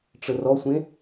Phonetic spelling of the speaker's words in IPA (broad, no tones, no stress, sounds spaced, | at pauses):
ʈ͡ʂ ə r ɔ sʷ ẽ